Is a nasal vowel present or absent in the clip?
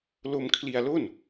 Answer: absent